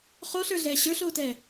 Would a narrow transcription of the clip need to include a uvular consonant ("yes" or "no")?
yes